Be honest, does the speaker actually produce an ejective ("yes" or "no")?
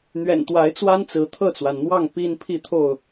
no